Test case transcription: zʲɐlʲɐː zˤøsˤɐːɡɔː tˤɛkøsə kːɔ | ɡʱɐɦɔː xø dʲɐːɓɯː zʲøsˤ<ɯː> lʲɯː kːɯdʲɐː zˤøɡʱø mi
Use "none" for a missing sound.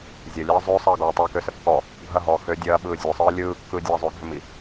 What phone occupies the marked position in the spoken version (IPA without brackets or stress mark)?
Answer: ɯː